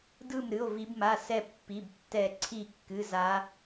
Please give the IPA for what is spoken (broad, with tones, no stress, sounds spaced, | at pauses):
d ɯ˥˨ m ɾ ɨ˧˥˧ o̯ v i˦˥ b m a˧˥˧ s ɛ˥˨ pː i˧˥˧ b tː ɛ˥˨ ǀʰ i˥˨ kː ɨ˧˥˧ z a˦˥